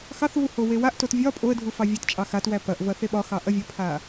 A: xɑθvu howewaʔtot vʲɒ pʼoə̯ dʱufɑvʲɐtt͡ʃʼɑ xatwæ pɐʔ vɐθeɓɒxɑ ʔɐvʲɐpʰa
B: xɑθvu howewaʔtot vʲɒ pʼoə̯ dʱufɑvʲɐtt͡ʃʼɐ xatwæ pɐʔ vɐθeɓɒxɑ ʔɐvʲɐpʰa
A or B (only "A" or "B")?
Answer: A